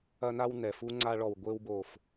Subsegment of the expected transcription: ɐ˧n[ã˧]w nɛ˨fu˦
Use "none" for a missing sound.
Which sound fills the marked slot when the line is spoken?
a˧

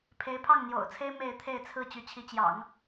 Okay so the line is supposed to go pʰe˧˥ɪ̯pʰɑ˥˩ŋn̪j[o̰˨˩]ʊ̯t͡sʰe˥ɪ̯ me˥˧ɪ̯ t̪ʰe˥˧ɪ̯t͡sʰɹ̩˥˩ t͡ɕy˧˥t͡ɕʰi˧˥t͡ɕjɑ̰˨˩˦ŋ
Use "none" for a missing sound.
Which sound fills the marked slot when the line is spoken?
o̰˨˩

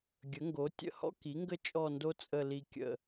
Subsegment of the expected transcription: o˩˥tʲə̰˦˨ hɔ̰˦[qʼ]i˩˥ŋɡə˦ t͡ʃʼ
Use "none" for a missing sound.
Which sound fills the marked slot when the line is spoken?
k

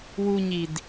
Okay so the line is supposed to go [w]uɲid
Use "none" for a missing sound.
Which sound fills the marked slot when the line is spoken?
w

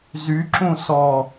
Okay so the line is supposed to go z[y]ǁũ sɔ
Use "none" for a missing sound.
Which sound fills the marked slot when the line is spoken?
y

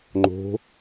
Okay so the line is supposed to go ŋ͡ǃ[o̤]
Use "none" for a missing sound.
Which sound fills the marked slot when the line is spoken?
o̤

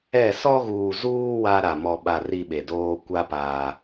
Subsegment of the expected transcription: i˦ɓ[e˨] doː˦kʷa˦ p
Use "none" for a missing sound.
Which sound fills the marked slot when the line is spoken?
e˨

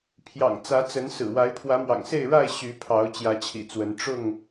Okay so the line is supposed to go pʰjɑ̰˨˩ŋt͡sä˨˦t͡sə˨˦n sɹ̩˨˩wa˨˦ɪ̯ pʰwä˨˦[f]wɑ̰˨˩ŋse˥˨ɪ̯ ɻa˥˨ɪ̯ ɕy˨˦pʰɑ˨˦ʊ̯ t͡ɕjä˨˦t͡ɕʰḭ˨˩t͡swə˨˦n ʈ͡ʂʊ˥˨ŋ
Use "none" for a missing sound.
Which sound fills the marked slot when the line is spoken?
m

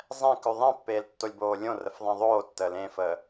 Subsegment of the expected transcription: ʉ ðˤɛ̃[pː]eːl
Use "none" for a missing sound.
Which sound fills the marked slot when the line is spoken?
pː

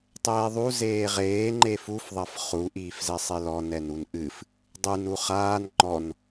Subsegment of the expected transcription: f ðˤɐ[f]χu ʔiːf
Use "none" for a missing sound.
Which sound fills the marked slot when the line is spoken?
f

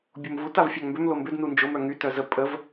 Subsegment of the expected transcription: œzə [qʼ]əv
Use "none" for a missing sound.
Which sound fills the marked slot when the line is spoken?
pʼ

